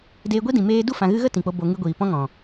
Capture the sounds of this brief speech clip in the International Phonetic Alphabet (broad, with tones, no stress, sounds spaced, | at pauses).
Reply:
d eː˧ ɡʷ i˦ d ĩ˨ m eː˦ d u˦˨ f ã˨ ɣ ɨ˧ ɣ ə˦ t ĩ˨ k͡p o˧ b o˧ ŋ ɨ˧ ɡʷ iː˨ p ɔ̃˦ ŋ ɔ̃˨